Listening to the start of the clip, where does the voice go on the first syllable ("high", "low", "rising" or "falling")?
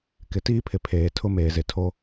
low